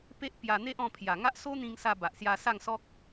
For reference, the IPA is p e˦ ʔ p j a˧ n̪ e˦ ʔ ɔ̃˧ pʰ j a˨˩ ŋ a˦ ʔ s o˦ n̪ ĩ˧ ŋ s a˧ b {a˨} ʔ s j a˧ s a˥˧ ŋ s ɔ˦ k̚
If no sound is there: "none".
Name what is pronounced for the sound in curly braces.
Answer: a˨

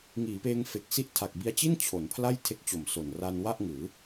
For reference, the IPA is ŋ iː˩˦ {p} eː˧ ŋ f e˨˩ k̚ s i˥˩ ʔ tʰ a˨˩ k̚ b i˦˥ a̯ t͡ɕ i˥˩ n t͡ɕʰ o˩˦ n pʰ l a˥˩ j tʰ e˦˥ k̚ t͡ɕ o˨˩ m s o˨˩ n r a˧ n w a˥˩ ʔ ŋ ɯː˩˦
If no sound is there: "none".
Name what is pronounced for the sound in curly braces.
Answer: p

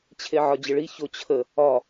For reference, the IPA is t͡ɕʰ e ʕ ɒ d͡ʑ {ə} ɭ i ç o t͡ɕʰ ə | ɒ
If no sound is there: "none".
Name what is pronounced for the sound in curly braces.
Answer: ə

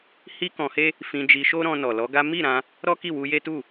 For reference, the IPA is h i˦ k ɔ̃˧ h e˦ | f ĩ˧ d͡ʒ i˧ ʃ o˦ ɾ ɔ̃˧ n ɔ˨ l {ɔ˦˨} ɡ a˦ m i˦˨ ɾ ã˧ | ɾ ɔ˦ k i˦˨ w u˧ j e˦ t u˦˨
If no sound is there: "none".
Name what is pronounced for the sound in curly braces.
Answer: ɔ˨˦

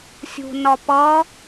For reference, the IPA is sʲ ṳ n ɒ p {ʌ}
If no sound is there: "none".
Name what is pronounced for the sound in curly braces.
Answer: ʌ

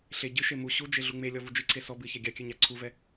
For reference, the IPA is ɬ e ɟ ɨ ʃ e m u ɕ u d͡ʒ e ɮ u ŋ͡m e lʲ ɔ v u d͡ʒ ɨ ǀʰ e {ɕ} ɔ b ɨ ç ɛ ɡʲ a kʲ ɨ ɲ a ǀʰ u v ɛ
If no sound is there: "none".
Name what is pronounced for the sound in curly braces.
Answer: s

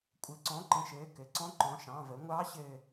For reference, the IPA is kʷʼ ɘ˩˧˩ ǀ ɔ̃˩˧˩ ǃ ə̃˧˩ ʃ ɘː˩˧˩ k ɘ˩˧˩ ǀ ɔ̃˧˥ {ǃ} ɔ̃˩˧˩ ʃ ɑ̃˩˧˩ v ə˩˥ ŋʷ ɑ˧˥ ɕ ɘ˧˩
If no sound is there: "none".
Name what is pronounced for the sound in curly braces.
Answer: ǃ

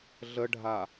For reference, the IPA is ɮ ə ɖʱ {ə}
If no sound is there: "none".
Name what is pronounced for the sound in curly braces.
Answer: a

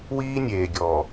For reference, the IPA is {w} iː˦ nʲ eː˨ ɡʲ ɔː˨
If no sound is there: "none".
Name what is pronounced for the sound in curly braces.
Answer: w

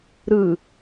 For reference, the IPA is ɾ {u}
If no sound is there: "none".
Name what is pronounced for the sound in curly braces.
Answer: ɯ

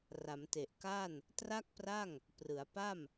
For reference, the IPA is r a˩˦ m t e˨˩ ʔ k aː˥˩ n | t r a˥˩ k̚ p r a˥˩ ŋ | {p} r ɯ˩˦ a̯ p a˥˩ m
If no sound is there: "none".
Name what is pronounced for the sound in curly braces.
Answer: p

